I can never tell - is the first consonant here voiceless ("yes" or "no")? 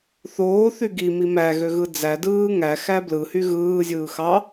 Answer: yes